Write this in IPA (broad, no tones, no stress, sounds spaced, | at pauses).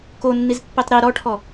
k o nː i z pː i tˤ ɾ i ɾ ɔ ʈʰ ɔ